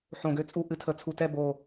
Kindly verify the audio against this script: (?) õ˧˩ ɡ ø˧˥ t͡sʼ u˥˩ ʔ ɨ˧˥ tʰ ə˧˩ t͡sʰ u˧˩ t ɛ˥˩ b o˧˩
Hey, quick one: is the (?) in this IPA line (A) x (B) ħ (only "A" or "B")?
B